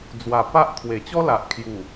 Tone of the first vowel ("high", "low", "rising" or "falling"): low